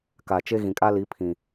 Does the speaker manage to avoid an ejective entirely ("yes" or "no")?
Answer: no